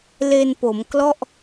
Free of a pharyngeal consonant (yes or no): yes